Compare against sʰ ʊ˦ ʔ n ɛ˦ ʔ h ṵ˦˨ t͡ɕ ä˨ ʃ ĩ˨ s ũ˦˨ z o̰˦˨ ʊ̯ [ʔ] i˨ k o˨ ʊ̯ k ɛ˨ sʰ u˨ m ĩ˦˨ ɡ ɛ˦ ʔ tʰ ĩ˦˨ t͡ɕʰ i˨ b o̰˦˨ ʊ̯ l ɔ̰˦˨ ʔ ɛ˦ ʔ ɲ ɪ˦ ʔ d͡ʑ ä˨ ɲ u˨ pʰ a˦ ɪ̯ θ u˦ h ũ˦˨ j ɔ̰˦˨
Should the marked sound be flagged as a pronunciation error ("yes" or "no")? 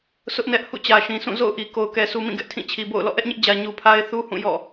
no